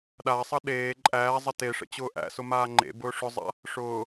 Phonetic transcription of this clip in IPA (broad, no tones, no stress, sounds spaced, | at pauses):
ɗ a sˤ ʌ ɗ eː ǃʼ æː zˤ ʌ t e ʂ ə̰ t͡ɕ ʊː ʔ æ̰ s ʊ m aː ŋ͡ǃ ḛ b ʊː ʂ ʊ zˤ a̰ | ʂ ʊː